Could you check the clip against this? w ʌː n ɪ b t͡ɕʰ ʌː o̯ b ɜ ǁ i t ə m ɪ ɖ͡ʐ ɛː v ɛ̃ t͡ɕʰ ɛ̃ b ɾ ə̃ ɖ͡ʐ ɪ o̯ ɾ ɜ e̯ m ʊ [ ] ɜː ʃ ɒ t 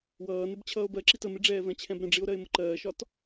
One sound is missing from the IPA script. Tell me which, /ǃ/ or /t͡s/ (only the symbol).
ǃ